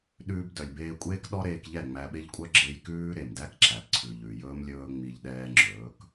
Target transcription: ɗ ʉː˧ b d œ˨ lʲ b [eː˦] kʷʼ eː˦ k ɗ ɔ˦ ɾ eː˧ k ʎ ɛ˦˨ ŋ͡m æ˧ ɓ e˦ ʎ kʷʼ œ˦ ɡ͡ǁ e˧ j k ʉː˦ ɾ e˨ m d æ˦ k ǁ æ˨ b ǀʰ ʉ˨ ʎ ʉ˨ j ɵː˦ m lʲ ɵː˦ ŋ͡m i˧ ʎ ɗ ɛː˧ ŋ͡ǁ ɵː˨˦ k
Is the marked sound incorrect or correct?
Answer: incorrect